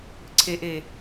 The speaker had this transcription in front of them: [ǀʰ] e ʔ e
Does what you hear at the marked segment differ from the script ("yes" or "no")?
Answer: no